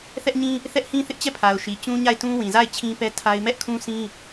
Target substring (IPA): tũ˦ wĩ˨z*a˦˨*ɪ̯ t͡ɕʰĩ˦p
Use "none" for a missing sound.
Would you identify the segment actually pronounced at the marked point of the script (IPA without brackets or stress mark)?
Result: a˦˨